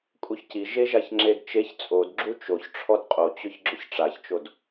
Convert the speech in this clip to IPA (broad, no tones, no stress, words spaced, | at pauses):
kʼuçci ʒeʒaçŋ͡ǁedt͡ʃeç t͡sʼodɡ͡ǁu t͡ʃoç ʈ͡ʂʰɔdqʼot͡ɕʊç ɡ͡ǁʊçʈ͡ʂaçt͡ʃod